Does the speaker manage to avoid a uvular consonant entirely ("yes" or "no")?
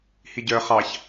no